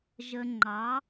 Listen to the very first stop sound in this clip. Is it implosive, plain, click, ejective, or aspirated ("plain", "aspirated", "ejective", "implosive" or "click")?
click